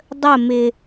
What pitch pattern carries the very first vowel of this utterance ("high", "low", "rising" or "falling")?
falling